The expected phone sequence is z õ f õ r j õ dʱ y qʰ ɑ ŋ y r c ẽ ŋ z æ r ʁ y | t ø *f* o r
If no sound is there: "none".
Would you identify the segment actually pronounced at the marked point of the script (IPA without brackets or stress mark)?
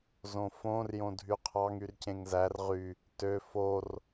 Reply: f